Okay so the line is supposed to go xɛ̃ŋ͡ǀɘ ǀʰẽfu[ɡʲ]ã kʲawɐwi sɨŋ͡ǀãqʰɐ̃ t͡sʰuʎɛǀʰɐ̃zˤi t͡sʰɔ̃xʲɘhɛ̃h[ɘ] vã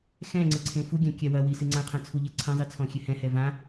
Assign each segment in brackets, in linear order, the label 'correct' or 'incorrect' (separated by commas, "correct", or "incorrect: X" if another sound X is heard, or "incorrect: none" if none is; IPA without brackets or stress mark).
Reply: correct, incorrect: ɛ